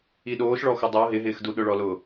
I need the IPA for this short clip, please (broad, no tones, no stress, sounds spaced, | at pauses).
i ɗ oː ʃ ɭ ɔ x ʊ dˤ o ɦ ɪ ɦ ɪː x d u ɗ ʊ ɭ ɔ l ʊ